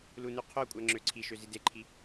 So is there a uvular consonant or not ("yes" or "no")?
yes